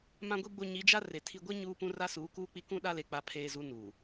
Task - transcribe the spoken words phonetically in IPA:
m ã˨ ɡʷ i˨ ɡ͡b o˨ ɲ i˨˦ d͡ʒ a˦ r e˨ tʰ i˨ ɡʷ ɛ˦ ɲ uː˦ p ũ˦ r a˦ s uː˨˦ k uː˦ k͡p i˦ k ũ˦ ɗ a˦ l e˨ k͡p a˨ pʰ eː˨ z u˨˦ n u˨

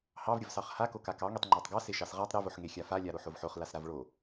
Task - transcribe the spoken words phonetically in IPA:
h ɑ v ɾʲ ə v s ɑ χ h a k o k a k ɑ ŋ e tˤ ŋ͡ǃ ɑ tˤ ɡ ɑ s e ʃ ɑ s ʁ a tˤ ɾ e v o ħ ŋ e xʲ a f a lʲ a ɾ o ħ o v ħ o χ l a s ɾ a v ɭ o

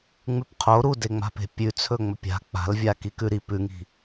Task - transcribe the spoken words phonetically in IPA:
ŋ͡m ʉ p qʰ o ɾ u d e ŋ͡m a̤ p e̤ pʲ ʉ t͡sʰ ɵ ŋ͡m ɵ pʲ a̤ k͡p a̤ l vʲ a k i k ʉ ɾ i p ʉ ŋ i̤

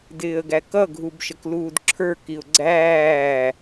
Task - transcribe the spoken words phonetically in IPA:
d ɪː ə̯ ɡ æ k ʌ ɡʱ u b ʃ ə k l uː d ǁʰ ə˞ k i ʊ̯ ɡ͡ǀ æː

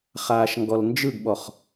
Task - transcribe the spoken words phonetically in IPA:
χ aː ʃ ŋ ɡ ɔ l n d͡ʒ ɯ ɡ ɓ ɔ χ

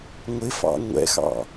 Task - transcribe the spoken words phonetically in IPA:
ŋʷ ɪ f ɑ̰ ŋʷ ɛ̰ x ɑ̰

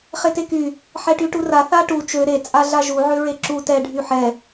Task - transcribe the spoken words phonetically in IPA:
χ e t e k y | ħ ɛ ʈ y ʈ u r a θ a ʈ u t͡ʃ ø ɾ e t͡sʼ a ɮ a ʒ u ʕ ø ɹ e ǁ u t ɛ ɖʱ y ħ ɛ

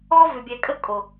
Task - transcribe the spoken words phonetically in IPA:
ɔ˦ v ʏ˨ bʲ ɛ˨ kʼ ə˦ kʼ o˨

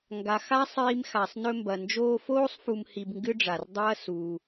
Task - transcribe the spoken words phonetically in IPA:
ŋ ɡ a˩ x a˥ sˤ iː˧ m x a˩ sˤ n ɵ˧ m b ɐ˩ n d͡ʒ oː˧ f oː˥ sˤ f u˧ m h i˧ b ŋ ɡ ɨ˥ ɖ͡ʐ a˩ r dˤ ɐː˥ s uː˩

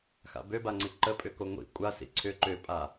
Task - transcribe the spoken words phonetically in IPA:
x a̰ b ø b a ŋ͡ǀ i ǃ ə pʼ ʏ k o ŋʷ ḭ kʷʼ a s ḭ ǀʰ ʏ ǃ ʏ pʼ a

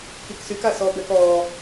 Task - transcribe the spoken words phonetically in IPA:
k i k s y k a s ɔ b ɛ k ɔ

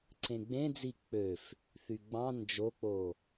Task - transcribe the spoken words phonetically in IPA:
ǀ ẽ ɡ͡b ẽ d͡z i k͡p ø f | θ y ɡ͡b ɑ̃ n d͡ʒ o k͡p o

